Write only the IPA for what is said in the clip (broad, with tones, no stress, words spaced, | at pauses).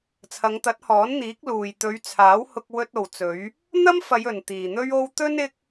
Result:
t͡sʰɐ˨˧ŋt̪ɐ˨˥t̚hɔː˨˥n n̪iː˨˥k̚luː˨j t̪ɵ˨˧ɥt͡sʰaː˨˥w hʊ˧k̚wɵ˧t̚o˨wt͡sɵ˨˧ɥ | n̪ɐ˥mfɐ˨˧j ɵ˨nt̪iː˨n̪ɵ˥ɥo˥w t̪ɵ˥n ɪ˥k̚